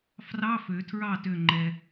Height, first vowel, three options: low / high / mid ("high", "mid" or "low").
low